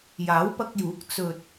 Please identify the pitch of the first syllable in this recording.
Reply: rising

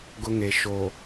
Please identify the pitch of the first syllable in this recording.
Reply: high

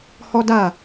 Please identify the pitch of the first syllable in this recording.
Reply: high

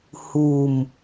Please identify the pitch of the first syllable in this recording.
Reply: low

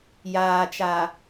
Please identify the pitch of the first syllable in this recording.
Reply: low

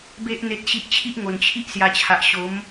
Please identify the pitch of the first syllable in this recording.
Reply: high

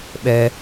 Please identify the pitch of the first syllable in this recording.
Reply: high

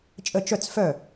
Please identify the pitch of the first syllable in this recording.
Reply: falling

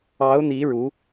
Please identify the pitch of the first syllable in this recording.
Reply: rising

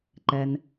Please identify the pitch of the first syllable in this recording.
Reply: low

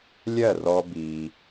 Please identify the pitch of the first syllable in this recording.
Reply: falling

